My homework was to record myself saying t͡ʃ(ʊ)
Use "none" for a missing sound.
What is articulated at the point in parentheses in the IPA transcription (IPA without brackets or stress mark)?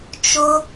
ʊ